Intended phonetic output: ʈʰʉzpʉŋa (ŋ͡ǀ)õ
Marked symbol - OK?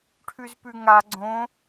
no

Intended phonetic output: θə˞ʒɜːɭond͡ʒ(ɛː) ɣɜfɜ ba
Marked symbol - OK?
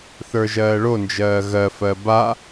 no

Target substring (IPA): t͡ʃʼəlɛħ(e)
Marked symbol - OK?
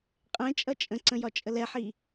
no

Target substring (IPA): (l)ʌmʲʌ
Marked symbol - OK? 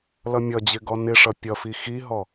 yes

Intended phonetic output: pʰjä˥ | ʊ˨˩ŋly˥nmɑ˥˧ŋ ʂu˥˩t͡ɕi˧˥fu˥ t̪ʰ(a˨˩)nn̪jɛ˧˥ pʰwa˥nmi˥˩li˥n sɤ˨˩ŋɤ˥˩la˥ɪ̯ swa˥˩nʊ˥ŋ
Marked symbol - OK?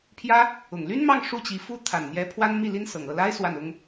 yes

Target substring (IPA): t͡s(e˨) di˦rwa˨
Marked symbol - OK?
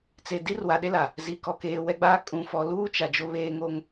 yes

